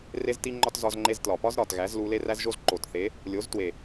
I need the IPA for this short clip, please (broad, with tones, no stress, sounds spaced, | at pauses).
r e˦ z t i˦ ŋ͡ǃ ɒ˦ t z ɒ˧ z ŋ͡ǃ e˧ z t l ɒ˨ p ɒ˦ z ɾ ɒ˨ t ɣ æ˨˦ z l u˧ l e˦ r æ˦ z ʒ o˦ z ǃ o˨ t θ e˨˦ | lʲ o˨˦ z t w e˨